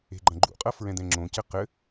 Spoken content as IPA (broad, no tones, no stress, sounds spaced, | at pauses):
e̤ ɡ͡ǃ ɐ̃ ɡ͡ǃ ṵ qʼ ɐ f ɹ ɛ̃ d̪ ɛ̃ ŋ͡ǁ õ c ɘ q ɘ